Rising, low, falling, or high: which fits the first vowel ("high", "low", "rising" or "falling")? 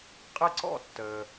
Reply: falling